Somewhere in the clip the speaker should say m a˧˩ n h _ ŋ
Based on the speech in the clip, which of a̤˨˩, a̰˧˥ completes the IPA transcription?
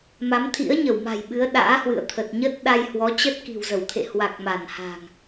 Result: a̤˨˩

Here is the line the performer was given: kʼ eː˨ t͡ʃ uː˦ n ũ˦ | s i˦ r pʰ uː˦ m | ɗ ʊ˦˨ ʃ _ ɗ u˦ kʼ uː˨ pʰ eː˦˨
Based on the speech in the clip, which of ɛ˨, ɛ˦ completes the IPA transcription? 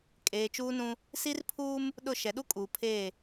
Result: ɛ˨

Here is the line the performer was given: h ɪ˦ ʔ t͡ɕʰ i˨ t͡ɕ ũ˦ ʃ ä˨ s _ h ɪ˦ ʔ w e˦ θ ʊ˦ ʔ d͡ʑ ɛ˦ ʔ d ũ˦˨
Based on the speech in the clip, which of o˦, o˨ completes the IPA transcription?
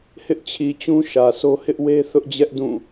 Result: o˦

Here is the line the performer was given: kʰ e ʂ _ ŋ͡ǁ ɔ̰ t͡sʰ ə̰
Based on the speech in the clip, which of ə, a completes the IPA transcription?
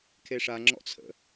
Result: a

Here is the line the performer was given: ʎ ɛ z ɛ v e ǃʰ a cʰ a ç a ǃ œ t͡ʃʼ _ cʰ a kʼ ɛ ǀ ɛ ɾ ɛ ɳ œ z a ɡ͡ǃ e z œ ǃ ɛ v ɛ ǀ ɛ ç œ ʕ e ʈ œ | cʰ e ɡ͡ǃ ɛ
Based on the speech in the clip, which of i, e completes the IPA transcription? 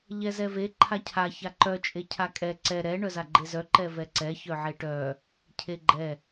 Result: e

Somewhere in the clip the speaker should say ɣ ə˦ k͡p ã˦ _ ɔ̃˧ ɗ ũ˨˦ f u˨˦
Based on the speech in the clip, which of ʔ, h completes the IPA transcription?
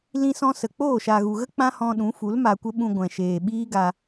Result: h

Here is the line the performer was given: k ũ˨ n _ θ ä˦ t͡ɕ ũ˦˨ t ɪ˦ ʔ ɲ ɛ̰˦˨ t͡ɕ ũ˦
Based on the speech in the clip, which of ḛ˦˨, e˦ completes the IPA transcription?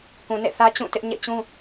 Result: ḛ˦˨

